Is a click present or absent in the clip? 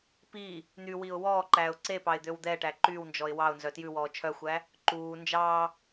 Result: present